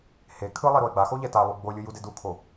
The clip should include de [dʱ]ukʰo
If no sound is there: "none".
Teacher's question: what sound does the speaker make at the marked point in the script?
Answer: d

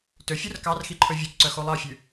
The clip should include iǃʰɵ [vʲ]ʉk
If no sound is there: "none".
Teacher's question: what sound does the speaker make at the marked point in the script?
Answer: vʲ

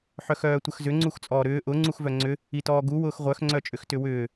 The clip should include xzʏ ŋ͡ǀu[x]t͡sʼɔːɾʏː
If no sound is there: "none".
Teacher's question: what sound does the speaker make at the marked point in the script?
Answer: x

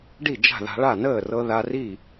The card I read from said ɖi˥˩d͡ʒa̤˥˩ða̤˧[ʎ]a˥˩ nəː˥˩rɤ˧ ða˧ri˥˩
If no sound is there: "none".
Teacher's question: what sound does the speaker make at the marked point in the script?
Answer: ɭ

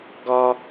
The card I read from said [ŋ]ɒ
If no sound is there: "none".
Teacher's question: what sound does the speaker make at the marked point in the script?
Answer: ɡ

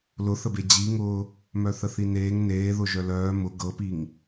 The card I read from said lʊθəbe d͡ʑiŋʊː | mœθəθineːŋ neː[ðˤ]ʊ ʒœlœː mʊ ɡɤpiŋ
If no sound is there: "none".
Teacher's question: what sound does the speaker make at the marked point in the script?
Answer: ð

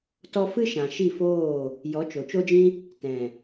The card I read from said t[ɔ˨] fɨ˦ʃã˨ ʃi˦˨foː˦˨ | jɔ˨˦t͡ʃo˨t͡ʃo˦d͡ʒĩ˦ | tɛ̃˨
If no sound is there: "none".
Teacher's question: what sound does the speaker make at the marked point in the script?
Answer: ɔ˧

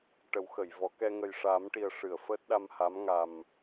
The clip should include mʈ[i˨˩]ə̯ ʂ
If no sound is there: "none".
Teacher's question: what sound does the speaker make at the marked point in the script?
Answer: i˨˩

